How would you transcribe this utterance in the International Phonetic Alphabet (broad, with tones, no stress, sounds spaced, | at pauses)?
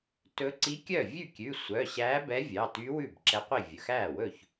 t ɵ˧˥ ǀ i˧˥ kʲ œ˥˩ vʲ ʉ˥˩ kʲ ʉ˩˧˩ sʷ œ˩˧˩ ɕ æː˧˥ b ɛ˧˥ vʲ ɑ˩˧˩ t y˧˥ w ʉ˥˩ b ǁ ɛ˧˥ qʷ i˥˩ vʲ ɵ˩˧˩ x æː˥˩ w ɵ˥˩ ç